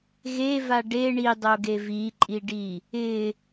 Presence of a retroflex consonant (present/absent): present